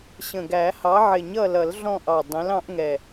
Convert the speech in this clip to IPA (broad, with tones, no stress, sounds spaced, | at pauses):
ɕ ə̃˨˩ ɡ æ˨˩˦ h ɑ˨˥ ʕ ɪ˨˩˦ ɲ ʌ˦˨ l ʌ˨˩˦ l ɮ ɔ̃˦˨ ʔ ɑ˨˩ dˤ ɛ̃˨˥ l ɑ̃˨˥ ʔ ŋ ɛ˨˩